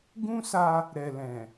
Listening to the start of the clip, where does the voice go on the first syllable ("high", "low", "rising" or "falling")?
high